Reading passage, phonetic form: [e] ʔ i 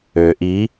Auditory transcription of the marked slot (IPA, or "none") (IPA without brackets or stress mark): ø